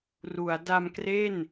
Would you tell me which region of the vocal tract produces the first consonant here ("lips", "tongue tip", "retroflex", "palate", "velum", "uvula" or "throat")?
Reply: tongue tip